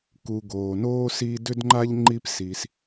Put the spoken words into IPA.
ku˨ɡoː˩noː˥si˦ dʏ˥dŋ͡ǃa˥ʎ ŋ͡ǃi˦psi˩s

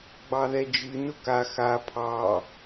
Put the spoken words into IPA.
ɡ͡bɑðɛd͡ʒɨ nʊka xa pʰɑ

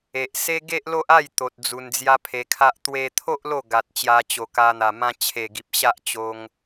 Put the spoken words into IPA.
e˨ʔse˦ ɡe˦ʔlo˦ʔa˥˧j t̪o˨t̚ d͡zu˧nd͡zja˦pʰe˧kʰa˦ʔ t̪we˧t̪ʰo˦ʔ lo˥˧ ɡa˨t̚ t͡ɕja˧t͡ɕo˨˩ka˧n̪a˨˩ mã˧t͡ɕʰe˨˩ɡi˨p̚ ɕa˦ʔt͡ɕo˧ŋ

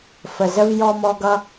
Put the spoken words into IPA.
fə˨zə˦v jɔ˦mɔ˦ ɡʌ˦

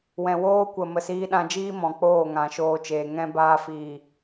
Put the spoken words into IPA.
wɛ̃˨woː˦kʷə˨ mə˨siː˧ ɗã˧d͡ʒiː˦mɔ̃˨ k͡poː˦˨ŋã˨ʃoː˧t͡ʃeː˨ ŋɛ̃˧ baː˧fiː˨

